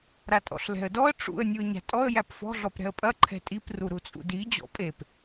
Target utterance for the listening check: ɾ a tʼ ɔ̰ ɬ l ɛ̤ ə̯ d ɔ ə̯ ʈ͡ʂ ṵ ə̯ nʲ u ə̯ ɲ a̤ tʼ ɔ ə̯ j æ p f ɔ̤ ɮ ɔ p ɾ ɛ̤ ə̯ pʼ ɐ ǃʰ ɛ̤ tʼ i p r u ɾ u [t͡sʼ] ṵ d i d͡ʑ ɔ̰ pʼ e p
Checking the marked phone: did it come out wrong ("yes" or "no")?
no